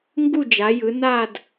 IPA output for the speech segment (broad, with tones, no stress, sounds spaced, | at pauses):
ŋ ɡ u˦˨ d͡ʒ a˩˧ j ɯ˩˧ n a˦˨ d